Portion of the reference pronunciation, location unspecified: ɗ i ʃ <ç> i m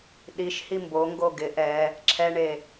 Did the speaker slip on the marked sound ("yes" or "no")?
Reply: yes